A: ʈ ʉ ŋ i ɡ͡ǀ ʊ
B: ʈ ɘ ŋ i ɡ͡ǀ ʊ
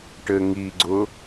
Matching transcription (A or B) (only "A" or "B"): B